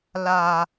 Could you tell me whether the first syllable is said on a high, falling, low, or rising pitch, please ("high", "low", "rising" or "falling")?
low